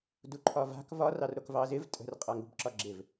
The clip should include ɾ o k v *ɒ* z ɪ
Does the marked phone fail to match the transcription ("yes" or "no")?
yes